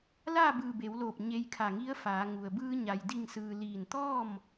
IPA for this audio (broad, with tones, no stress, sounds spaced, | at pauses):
l aː˥˨ b ɯː˧˩ b e˩˧ w l oː˧˩ p̚ ɲ e˧ j kʰ a˧˩ ŋ i˧˥ ə̯ f aː˩˧ ŋ u˩ ə̯ b ɯː˧ ɲ a˩ j d i˧˩ ŋ s ɯː˩ l iː˧˩ n t̪ ɔː˥˨ m